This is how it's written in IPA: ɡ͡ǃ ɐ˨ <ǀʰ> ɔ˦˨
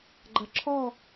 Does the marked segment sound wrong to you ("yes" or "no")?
yes